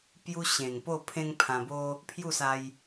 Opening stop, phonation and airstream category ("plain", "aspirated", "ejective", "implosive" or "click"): plain